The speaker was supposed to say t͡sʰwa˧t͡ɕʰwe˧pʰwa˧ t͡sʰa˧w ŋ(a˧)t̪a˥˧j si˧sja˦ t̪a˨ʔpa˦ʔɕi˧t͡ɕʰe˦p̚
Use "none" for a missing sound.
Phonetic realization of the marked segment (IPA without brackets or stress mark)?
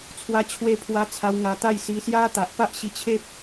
a˧